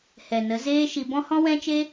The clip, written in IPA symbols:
h ɛ˨ n ə˨˦ z eː˦ ʃ i˧ b ɔ̃˦ h ɔ̃˦ w ɛ̃˦ t͡ʃ e˦

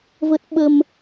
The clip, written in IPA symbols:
v ə˦˥ t̚ ɓ ə˧ m

